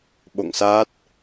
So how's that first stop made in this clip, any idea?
implosive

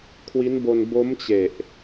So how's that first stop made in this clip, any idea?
aspirated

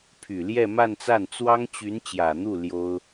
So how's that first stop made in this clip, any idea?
aspirated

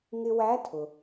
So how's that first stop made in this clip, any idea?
aspirated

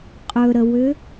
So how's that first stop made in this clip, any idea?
ejective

